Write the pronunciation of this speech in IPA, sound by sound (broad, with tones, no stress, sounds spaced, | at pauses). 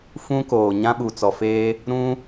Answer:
f ũ˦ k oː˨ ɲ ã˦ ɓ u˨ t͡s ɔ˨ f eː˦ | ɾ ũ˦